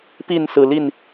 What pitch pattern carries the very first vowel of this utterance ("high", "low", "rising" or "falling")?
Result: falling